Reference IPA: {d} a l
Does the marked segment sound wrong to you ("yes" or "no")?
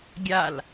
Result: yes